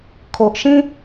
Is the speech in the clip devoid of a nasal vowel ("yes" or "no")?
no